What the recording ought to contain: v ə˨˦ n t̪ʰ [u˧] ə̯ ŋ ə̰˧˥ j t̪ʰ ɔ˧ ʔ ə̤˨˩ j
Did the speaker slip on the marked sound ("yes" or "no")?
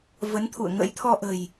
yes